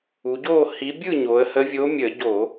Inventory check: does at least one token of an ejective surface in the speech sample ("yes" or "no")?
no